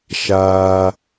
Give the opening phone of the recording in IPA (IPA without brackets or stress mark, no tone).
ʃ